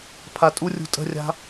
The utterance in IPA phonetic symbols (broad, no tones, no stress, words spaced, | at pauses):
pʰatʼurʲṳ tʼə̤rʲa̤